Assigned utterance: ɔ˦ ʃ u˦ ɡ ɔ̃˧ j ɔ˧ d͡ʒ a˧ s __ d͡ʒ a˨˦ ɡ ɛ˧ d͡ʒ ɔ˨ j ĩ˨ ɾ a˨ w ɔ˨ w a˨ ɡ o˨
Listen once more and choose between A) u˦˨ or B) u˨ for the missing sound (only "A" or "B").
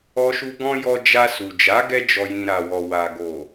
B